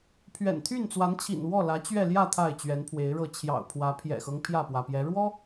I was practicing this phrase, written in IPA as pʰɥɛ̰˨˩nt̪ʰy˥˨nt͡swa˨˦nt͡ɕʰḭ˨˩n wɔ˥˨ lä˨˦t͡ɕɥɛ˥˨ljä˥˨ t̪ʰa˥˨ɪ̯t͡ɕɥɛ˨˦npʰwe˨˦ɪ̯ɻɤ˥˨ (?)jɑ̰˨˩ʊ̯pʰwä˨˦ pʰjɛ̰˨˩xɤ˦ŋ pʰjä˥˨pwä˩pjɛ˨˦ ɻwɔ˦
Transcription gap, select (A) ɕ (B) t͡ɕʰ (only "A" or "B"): B